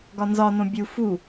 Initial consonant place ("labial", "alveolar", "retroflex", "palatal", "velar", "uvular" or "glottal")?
velar